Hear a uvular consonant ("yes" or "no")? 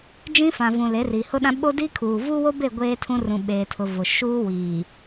no